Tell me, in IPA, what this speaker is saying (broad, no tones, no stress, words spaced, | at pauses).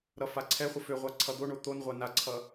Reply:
ɾʌfaǀʰɛχʷə føʁʷa ǀʰʌd̪oɳo t̪onʁʷa naǀʰʌ